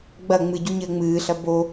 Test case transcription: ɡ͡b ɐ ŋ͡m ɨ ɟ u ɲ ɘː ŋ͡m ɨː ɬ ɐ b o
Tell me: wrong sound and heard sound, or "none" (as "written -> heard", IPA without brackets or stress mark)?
none